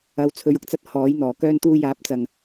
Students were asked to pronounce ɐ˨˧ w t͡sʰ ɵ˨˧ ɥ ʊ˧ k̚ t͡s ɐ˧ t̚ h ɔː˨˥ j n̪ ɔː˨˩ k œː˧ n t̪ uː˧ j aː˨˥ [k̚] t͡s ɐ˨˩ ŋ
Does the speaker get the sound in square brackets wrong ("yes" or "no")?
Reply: yes